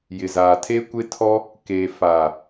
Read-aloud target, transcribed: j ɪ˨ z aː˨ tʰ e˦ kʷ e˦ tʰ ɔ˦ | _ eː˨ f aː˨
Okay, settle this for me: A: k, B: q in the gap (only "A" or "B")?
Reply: A